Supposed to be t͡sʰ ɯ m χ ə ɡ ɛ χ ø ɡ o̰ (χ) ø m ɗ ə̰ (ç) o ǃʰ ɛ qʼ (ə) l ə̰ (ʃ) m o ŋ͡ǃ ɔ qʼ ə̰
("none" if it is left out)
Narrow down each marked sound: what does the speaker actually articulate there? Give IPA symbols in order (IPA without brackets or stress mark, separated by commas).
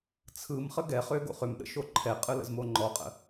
χ, ʃ, ɯ, z